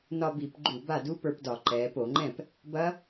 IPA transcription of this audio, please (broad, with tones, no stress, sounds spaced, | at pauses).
n ɒ˧ b i˧˩˧ p ɡ͡ǃ u˧˩˧ b a˥˩ d u˦˥ p ə˞˧ p d ɒ˧˩˧ ǃ ɛː˩˧ p o˧˩˧ ŋ͡ǃ ɛ̃˥˩ p | b ɐ˦˥